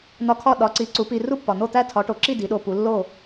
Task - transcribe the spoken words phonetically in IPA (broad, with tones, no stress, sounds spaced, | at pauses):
n̪ ɒ˧ kʰ ɒ˥˩ ɗ ɒ˩˥ ǀ i˩˥ ǀ u˩˥ p i˧ r u˥ pː ɒ˩ n̪ o˥˩ t̪ æ˥ tʰ ɒ˩˥ ʈ o˩ ǁ i˥˩ d i˩˥ ɗ o˧ p u˩˥ lː o˥˩